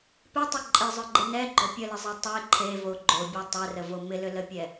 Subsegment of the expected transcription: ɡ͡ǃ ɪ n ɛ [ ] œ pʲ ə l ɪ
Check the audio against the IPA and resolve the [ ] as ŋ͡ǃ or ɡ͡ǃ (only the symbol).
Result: ɡ͡ǃ